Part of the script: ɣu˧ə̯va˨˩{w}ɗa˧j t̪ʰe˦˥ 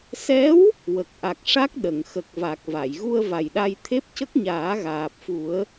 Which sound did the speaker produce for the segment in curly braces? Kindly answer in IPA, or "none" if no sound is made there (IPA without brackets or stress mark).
j